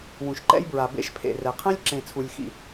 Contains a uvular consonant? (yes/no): yes